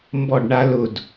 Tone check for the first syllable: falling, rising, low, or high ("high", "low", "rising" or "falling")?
falling